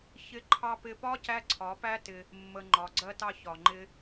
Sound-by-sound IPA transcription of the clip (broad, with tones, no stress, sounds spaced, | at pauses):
ç ɪ˧ ǃʰ ɑ˧ p ɪ˧ p ɒ˦ c æ˦ ǀʰ ɒ˨˦ p æ˦ t ɪ˧ | mː ə˨ ŋ͡ǃ ɒ˨ ɡ͡ǀ ɜ˧ t ɑ˧ ç ɒ˨ ŋ͡ǃ ɪ˧